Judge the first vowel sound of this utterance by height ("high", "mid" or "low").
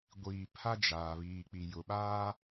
high